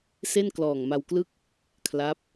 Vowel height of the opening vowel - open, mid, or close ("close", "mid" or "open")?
mid